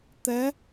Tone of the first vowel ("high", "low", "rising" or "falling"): rising